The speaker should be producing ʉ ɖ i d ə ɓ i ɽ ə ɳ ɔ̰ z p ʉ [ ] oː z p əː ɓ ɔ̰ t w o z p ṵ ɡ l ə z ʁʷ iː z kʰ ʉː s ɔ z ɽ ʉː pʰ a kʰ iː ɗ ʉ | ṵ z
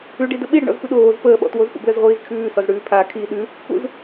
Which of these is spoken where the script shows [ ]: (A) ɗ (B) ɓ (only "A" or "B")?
A